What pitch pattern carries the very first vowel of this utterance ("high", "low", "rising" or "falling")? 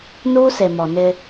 high